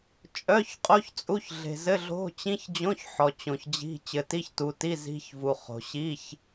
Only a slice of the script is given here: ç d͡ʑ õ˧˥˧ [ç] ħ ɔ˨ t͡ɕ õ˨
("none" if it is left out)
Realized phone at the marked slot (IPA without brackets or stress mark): ç